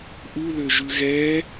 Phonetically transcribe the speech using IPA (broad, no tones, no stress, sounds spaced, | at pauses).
ʔ u ð ø ʒ ʉ ɣ ɛ